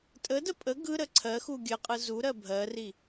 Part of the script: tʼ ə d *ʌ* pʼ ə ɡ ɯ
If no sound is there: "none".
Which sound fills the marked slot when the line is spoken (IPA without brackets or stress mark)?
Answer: ə